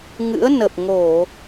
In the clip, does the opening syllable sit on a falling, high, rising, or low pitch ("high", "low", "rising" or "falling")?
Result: rising